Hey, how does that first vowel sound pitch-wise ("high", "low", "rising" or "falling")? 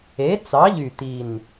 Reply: rising